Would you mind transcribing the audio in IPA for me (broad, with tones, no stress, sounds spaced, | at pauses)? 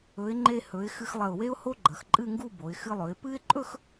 ɵ˩˧ ɪ̯ ŋ͡ǃ e˧ h ɵ˩˧ ɪ̯ x ɨ˧ x lˠ ɐ˧˩ ʊ̯ w e˥ ʊ̯ h o˥ ɡ͡ǃ ɐ˩˧ x ǃʼ ɨ˥˧ ŋ ɡ u˥˧ b o˩˧ ɪ̯ x ɨ˧ lˠ ɵ˩˧ ɪ̯ p ɨ˥ ɪ̯ ǃʼ ɵ˥˧ x